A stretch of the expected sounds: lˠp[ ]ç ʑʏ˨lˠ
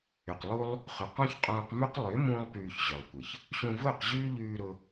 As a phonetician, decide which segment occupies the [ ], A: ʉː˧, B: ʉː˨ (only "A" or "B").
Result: B